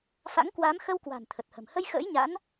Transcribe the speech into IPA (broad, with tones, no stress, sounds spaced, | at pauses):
f a̰˧˥ ŋ k w aː˨˦ m x ə˧ w k w a̤˨˩ n t̪ʰ ə˨˩ t̚ h ə̤˨˩ m h ə˧ j x ə̰ː˧˥ j ɲ a̰˧˥ n